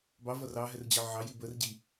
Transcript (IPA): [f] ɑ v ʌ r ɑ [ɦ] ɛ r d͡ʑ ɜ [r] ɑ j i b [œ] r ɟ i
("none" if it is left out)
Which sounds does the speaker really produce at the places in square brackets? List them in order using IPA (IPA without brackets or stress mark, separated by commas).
b, ɦ, ʕ, ə